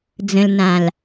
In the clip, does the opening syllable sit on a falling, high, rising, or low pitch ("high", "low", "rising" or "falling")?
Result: low